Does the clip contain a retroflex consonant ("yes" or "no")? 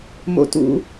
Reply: no